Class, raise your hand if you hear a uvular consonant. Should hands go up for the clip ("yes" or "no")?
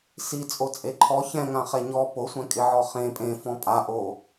yes